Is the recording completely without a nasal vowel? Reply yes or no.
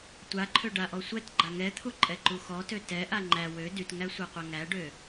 yes